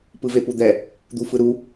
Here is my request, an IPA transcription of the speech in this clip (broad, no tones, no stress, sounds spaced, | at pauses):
p ɯ v e p u d̪ ɛ | d̪ u f ɯ ɾ u